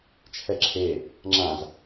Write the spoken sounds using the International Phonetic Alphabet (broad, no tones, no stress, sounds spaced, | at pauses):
t͡ʃʰ ɛ ǁʰ e | ŋ͡ǁ ã z